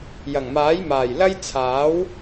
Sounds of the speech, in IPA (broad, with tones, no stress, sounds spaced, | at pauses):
j ɐ˨˩ ŋ m aː˨˥ j m aː˨˩ j l ɐ˥ j t͡sʰ aː˨˥ w